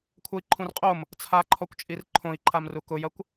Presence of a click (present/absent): present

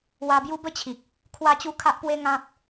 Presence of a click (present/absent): absent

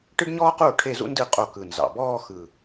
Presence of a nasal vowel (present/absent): absent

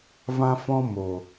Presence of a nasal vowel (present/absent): present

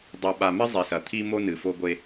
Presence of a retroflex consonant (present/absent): absent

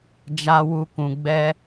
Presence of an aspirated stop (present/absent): absent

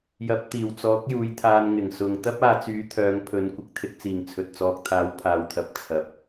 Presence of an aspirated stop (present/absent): present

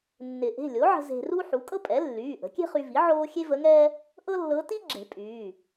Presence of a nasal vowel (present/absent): absent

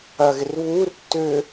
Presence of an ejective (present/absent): absent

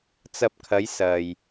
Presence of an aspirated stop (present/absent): present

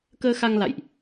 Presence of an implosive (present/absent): absent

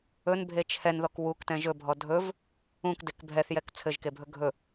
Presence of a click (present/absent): absent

